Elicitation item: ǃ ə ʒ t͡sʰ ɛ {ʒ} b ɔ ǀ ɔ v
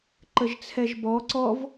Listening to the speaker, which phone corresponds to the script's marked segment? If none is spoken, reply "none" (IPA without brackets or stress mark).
ʒ